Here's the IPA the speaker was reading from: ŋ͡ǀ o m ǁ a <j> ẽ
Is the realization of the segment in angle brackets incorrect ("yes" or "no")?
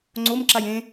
no